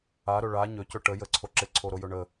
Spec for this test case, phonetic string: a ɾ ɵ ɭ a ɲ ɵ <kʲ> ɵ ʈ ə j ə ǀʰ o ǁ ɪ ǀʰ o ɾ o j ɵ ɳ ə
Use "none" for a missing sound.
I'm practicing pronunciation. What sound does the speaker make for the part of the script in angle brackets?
c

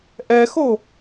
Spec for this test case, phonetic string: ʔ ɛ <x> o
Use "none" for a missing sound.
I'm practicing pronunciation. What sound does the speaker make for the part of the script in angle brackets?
x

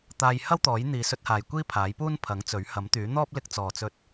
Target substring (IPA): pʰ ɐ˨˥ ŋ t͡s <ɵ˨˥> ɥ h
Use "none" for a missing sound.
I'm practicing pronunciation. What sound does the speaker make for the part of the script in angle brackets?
ɵ˨˥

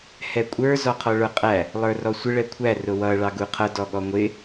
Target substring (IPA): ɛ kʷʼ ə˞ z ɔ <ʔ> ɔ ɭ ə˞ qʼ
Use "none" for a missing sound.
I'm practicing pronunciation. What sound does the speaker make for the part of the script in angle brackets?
qʰ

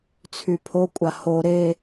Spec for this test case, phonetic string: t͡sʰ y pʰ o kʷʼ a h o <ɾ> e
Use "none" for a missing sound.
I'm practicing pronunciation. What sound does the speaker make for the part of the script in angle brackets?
ɾ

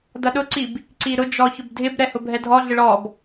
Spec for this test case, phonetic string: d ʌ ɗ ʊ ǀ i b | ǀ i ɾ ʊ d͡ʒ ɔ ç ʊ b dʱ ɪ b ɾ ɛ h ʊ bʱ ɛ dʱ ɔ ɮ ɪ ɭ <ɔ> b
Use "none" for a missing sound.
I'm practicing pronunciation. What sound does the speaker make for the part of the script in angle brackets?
ɔ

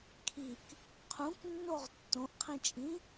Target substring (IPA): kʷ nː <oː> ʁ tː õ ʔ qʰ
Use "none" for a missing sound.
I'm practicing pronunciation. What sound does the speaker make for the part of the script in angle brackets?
o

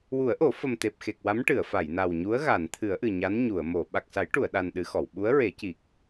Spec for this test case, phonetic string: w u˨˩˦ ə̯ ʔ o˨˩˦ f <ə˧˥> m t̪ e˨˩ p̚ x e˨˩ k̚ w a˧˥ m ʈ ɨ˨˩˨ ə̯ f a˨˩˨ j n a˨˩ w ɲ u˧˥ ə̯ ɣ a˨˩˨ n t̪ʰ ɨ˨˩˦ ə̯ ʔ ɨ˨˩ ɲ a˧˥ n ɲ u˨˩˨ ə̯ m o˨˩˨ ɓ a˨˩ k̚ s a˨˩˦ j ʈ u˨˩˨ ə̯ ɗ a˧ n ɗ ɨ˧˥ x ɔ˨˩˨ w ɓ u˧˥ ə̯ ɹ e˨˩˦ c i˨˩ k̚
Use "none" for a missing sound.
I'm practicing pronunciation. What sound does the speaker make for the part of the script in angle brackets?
ə˨˩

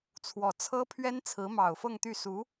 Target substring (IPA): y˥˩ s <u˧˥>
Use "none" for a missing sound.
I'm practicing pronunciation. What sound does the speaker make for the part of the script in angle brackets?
u˧˥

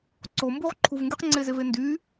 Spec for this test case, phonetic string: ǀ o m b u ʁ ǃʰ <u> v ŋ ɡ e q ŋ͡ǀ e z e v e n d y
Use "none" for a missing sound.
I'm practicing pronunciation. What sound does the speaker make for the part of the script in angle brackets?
u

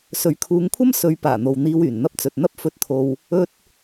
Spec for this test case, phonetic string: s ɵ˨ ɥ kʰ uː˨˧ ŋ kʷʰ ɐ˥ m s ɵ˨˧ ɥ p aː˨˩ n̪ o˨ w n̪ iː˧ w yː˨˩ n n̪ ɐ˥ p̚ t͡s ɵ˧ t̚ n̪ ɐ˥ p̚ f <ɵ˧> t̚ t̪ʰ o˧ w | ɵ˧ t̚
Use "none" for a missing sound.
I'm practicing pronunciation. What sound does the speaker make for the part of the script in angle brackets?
ɵ˧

